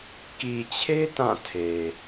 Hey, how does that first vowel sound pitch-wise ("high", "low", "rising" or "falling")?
low